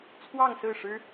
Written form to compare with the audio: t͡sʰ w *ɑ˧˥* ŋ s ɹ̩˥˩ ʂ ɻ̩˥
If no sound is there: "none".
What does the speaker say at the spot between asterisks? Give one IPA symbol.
ɑ˥˧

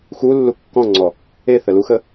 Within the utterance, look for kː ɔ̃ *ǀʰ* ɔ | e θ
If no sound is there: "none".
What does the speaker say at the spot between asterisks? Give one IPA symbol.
ŋ͡ǀ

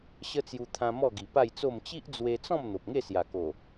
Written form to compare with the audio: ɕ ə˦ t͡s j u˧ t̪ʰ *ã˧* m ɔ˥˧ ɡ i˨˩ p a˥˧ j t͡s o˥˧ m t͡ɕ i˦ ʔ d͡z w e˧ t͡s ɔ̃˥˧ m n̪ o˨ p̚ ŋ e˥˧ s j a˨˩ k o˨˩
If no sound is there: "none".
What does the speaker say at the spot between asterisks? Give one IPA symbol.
ã˧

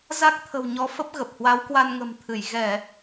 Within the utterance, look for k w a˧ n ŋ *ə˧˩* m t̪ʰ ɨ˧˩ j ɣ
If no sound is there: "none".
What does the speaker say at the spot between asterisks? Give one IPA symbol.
ə̤˨˩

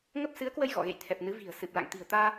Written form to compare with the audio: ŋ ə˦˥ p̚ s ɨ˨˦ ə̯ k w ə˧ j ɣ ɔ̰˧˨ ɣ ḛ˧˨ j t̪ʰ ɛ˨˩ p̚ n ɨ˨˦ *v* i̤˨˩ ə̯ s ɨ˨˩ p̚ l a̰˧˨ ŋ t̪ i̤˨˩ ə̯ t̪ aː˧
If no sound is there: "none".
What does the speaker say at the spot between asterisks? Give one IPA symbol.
v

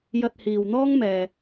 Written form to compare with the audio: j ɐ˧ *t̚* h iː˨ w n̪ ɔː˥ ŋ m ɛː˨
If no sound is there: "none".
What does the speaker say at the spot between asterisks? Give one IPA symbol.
t̚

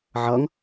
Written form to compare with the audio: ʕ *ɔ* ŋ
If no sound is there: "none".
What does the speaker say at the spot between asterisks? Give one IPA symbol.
ʌ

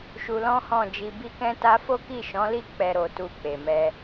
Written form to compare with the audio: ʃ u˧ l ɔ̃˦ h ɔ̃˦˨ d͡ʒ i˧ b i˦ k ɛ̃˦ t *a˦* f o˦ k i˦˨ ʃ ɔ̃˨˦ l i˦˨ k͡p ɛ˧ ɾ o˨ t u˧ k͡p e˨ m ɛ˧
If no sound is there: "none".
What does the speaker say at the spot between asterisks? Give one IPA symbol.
a˦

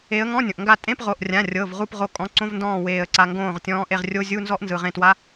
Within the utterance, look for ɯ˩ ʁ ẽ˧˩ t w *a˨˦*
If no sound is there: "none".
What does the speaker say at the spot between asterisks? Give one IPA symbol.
a˧˥˧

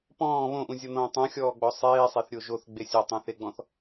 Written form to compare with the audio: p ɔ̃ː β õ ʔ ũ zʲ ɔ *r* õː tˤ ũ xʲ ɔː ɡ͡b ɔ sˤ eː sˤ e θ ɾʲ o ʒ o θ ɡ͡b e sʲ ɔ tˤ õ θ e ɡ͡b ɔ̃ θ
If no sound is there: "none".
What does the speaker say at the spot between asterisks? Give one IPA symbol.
n̪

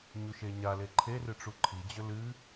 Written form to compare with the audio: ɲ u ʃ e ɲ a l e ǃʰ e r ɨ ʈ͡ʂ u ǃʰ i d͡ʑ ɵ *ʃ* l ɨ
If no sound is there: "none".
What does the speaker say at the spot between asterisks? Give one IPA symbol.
none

